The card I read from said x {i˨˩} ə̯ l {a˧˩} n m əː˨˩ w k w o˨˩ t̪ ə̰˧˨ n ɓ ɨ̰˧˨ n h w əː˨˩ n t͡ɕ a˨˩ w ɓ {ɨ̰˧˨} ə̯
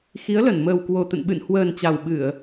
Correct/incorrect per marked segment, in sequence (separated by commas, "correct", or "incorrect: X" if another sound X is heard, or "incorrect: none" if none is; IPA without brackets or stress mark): incorrect: i˨˦, incorrect: ə˧˩, incorrect: ɨ˧˩˨